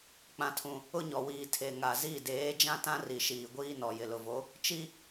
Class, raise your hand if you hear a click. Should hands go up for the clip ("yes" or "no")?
no